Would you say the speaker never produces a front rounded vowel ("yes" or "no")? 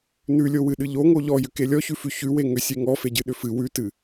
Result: no